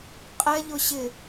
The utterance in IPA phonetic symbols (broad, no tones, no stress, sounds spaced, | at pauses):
qʼ ɛ ʎ ʊ ɕ ɪ